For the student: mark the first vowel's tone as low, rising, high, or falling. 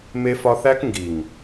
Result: high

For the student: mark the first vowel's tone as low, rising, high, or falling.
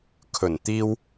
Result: low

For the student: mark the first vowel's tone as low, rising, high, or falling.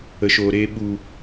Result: low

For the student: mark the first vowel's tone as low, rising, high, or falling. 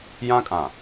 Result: high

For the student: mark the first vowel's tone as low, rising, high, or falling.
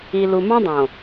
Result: low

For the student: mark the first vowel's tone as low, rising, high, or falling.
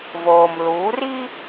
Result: low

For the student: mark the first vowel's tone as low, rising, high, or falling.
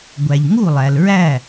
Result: low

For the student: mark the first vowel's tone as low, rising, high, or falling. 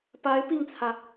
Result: rising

